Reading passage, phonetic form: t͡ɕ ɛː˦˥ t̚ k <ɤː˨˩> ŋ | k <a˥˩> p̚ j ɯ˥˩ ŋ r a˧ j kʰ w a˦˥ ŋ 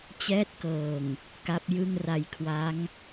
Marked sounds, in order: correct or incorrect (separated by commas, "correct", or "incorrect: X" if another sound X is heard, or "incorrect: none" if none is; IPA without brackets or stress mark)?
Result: correct, incorrect: a˦˥